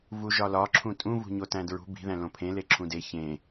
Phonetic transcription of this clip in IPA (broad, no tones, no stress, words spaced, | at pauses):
vuʒɒlɒ ǁʰũtʼũ vṳɲotæ̃dɹṳ bi̤ ðæ̃lõpʰẽ leǁʰũde çẽ